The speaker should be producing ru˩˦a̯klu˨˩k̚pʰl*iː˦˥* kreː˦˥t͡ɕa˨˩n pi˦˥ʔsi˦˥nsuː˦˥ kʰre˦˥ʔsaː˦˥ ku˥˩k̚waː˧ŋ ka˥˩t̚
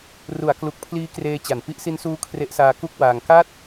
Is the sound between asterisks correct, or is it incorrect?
correct